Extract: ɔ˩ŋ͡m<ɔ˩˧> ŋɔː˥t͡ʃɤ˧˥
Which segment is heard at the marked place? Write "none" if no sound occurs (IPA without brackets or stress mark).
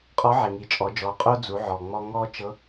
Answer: ɔ˧